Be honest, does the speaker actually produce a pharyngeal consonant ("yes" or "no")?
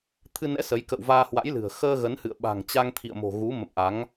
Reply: no